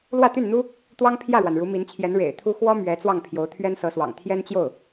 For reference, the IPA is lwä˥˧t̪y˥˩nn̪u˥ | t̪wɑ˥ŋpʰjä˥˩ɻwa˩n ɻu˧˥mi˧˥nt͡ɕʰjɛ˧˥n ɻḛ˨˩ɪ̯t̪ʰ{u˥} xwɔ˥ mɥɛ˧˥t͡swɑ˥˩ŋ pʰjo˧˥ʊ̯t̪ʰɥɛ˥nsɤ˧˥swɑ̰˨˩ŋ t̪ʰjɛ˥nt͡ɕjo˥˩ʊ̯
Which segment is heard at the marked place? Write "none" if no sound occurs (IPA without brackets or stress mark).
u˥